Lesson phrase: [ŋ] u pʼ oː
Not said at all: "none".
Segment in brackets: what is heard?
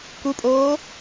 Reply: k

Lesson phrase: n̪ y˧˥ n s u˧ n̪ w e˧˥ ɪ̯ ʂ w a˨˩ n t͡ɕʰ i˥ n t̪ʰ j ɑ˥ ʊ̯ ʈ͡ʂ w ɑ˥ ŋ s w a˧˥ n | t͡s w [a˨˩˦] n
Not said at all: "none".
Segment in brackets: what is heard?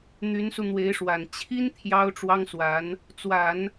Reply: a˨˩˦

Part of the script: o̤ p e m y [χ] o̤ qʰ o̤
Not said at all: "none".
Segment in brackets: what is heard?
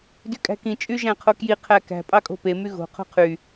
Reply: ɣ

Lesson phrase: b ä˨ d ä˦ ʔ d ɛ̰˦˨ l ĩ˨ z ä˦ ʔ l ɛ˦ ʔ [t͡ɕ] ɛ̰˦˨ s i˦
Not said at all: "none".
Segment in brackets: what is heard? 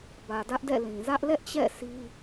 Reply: t͡ɕ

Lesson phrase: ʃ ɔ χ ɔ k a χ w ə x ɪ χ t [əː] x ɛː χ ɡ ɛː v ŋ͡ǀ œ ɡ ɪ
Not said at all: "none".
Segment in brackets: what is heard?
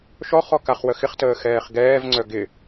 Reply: əː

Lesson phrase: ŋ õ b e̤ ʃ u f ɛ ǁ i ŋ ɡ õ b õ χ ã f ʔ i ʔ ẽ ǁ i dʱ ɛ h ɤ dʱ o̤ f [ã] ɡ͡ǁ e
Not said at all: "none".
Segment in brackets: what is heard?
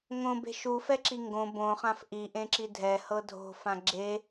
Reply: ã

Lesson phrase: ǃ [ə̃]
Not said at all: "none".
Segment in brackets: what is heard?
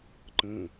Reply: ə̃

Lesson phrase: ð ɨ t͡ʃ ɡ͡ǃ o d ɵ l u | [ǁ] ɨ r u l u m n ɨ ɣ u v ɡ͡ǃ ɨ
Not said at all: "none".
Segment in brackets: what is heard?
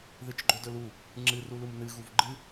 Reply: ŋ͡ǁ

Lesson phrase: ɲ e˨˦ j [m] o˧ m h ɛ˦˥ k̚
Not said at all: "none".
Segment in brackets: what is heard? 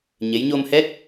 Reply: ɲ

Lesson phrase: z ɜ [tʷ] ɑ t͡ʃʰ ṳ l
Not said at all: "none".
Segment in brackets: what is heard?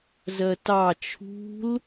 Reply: t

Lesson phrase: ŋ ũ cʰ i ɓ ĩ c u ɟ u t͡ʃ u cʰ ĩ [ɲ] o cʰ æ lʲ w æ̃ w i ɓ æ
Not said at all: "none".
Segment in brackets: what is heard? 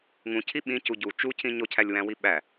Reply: ɲ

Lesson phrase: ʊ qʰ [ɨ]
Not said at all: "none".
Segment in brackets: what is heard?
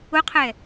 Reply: ɛ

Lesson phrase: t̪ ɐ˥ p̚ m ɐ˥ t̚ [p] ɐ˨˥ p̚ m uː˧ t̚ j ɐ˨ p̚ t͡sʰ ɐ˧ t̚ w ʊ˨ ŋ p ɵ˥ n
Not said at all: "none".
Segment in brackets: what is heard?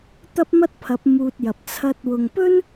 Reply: pʰ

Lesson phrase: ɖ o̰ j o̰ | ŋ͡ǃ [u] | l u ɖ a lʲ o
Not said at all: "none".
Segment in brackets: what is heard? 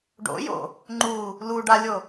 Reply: u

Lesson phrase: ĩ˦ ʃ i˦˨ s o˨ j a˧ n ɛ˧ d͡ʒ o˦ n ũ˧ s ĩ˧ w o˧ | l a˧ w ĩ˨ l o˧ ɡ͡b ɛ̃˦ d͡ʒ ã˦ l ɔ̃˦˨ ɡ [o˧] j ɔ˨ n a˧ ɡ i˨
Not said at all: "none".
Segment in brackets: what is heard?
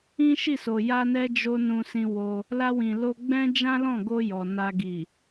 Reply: o˧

